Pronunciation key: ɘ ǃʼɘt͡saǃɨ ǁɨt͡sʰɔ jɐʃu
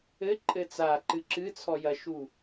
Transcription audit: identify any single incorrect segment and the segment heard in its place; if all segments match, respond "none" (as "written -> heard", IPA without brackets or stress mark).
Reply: none